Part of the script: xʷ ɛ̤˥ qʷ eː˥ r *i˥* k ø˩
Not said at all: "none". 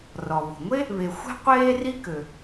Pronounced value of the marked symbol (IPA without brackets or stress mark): i˥